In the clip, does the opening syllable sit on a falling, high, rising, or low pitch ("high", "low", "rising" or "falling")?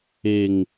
low